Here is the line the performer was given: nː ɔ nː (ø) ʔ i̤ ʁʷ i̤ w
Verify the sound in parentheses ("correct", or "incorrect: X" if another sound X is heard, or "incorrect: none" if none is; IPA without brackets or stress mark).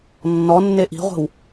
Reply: incorrect: e